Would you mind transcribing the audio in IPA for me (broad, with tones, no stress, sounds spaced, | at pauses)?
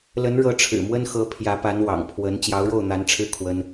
l ə˧˥ n ɻ ɤ˧˥ ʈ͡ʂʰ ɻ̩˨˩ m w ə˥ n x ɤ˧˥ pʰ j ä˧˥ p a˧˥ n w ɑ̰˨˩ ŋ pʰ w ə˧˥ n t͡ɕ j ɑ˧˥ ʊ̯ ɻ o˥˩ ʊ̯ n̪ a˧˥ n ʈ͡ʂʰ ɻ̩˥˩ kʰ w ə˥ n